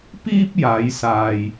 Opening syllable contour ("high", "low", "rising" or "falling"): high